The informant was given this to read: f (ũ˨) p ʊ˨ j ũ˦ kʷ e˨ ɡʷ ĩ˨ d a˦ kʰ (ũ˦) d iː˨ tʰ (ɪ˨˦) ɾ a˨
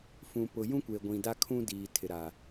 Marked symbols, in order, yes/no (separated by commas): yes, yes, no